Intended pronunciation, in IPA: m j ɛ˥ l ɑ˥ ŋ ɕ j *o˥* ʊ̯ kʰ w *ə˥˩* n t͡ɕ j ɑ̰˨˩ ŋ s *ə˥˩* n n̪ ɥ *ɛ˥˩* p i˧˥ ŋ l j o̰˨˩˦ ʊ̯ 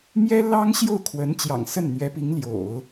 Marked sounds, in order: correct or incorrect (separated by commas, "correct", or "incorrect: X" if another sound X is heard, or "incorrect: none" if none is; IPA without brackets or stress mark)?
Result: incorrect: o˥˩, incorrect: ə˧˥, correct, incorrect: ɛ˧˥